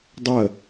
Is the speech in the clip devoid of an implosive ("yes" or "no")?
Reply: yes